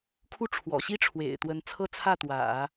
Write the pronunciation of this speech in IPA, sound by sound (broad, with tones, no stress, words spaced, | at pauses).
kʰu˥ ʈ͡ʂʰwɔ̰˨˩ɕi˥ ʈ͡ʂʰwḛ˨˩ɪ̯t̪wə˧˥n t͡sʰɤ˥˧t͡sʰä˥˩ t̪wä̰˨˩˦